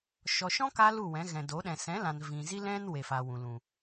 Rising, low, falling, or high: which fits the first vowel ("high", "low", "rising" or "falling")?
low